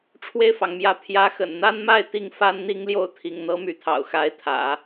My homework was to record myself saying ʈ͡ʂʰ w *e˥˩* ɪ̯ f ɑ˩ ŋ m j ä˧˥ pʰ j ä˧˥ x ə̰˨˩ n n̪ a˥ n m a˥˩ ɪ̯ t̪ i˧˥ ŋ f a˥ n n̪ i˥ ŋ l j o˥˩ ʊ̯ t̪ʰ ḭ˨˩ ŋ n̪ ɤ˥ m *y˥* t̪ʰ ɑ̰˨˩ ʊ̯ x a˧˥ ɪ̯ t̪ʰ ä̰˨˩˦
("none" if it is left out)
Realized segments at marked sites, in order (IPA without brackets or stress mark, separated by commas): e˥˩, y˧˥